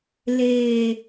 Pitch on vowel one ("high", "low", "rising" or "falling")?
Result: low